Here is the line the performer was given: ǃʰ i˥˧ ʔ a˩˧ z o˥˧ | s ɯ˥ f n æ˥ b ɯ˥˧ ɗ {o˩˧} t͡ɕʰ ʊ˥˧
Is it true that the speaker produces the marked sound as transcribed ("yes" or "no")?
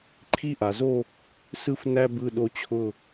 no